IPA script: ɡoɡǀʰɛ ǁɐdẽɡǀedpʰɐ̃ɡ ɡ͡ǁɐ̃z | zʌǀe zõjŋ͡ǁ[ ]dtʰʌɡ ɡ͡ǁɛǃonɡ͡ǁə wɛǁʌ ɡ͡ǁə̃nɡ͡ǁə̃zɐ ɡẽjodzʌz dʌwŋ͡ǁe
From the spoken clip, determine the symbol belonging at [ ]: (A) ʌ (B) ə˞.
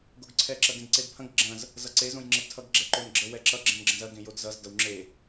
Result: A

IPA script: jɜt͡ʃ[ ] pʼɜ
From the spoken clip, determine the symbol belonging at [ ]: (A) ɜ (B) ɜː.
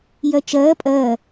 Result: B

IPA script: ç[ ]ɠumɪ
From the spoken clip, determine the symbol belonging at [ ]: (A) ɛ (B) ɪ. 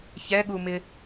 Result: A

